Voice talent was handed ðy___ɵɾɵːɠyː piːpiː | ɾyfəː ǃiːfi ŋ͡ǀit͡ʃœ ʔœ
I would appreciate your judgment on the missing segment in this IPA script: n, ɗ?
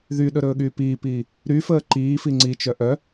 ɗ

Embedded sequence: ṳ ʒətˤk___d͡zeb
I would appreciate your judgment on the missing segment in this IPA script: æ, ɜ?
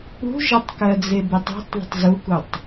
ɜ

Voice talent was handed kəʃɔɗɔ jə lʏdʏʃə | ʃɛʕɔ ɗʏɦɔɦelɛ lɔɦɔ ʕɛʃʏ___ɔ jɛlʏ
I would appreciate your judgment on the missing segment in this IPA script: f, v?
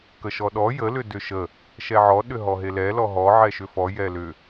f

